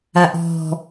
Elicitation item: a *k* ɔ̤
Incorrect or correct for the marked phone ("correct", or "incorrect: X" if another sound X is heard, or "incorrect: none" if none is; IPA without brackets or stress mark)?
incorrect: ʔ